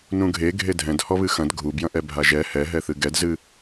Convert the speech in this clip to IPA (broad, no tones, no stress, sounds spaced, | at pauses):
n ũ ɡʱ e ɡʱ e dʱ ɛ̃ d h ɔ β ɨ x ɐ̃ d ɡʱ u b j ɐ̃ ʔ ɛ bʱ a ʒ ɛ h ɛ ɦ ɛ θ ɨ ɡ ɛ d z ɨ